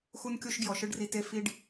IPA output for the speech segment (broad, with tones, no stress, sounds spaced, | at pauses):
x u˦ n kʲ o˦ ʃ ɡ j ɔ˨ ʃ ɯ˧ ɖ r i˨ t e˧ f i˧ ɖ